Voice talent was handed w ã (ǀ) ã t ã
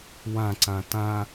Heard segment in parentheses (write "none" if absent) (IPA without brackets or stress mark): ǀ